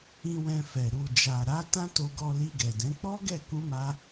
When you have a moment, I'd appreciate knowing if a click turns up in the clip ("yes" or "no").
no